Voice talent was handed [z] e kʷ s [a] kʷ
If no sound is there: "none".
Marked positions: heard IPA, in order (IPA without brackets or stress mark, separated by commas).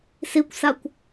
s, a